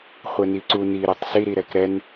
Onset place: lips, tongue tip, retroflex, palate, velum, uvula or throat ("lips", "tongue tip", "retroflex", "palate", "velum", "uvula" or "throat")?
uvula